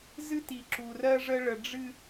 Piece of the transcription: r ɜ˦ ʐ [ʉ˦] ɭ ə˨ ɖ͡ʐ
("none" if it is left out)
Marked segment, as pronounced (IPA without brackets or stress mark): ə˦